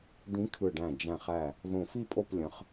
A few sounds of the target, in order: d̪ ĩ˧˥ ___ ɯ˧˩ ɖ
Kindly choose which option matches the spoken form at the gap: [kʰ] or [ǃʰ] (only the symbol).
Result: kʰ